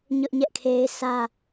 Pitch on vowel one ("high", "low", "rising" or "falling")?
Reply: high